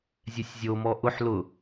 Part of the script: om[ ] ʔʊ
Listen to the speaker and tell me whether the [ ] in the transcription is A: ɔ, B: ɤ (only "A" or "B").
A